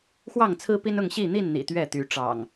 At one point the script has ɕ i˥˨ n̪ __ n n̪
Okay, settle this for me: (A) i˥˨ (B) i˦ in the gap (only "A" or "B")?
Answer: A